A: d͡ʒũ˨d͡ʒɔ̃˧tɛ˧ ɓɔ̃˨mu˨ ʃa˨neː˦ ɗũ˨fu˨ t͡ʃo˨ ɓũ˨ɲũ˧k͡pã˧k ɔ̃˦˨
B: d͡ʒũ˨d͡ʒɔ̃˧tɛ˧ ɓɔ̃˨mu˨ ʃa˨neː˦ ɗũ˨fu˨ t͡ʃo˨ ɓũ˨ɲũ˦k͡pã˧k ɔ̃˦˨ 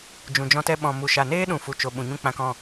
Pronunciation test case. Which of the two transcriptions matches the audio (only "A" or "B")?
B